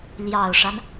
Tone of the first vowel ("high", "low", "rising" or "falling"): low